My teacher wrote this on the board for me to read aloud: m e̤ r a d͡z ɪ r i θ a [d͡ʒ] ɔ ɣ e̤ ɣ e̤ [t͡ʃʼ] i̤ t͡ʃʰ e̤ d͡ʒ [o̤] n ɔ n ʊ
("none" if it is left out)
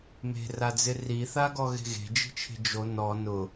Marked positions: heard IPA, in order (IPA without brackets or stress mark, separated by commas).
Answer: ɡ, d͡ʒ, o